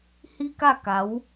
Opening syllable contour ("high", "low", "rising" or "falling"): high